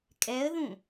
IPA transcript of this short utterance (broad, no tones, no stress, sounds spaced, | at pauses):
kʼ ɛ ə̯ ð ũ